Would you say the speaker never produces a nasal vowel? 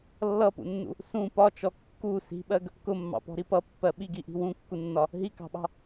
no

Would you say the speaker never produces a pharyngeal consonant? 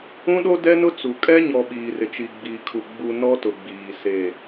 yes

